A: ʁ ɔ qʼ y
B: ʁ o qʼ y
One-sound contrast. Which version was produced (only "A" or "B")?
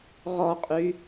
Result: A